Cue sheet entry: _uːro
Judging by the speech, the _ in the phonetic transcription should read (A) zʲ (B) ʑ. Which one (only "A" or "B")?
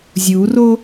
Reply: A